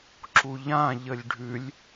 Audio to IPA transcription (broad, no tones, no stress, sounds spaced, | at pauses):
ǁ u ʎ ã ʎ ə lʲ ɖʱ ʉ lʲ